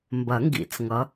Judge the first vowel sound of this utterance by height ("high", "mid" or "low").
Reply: low